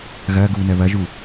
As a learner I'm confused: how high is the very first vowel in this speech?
low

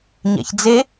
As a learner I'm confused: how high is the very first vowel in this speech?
low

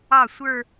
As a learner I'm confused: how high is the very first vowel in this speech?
low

